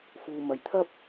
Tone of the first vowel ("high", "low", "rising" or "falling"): low